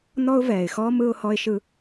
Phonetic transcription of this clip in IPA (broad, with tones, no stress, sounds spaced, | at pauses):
n ɔ˧ ʊ̯ v ɛː˩ ɪ̯ x ɔː˧ m ɯ˧ ʊ̯ h ɔ˧ ɪ̯ ʃ ɯ˧